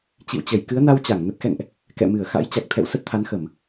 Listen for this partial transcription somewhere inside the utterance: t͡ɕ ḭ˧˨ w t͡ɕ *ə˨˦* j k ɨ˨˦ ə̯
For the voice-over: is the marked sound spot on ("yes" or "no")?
no